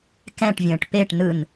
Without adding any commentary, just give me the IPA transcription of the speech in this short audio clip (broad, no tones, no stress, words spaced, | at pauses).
kɛ̃ʈvʲə̃ːʈ peʈ nɯn